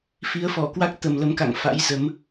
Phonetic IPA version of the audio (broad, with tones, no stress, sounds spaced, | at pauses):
f i˨˦ ə̯ f ɔ˧˩ k w a˦˥ k̚ t̪ ə˨˩ m l ə˨˦ m k a̰˧˨ ŋ f a̰˧˥ j z ə˨˦ m